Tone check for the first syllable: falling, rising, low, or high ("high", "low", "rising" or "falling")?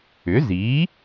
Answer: rising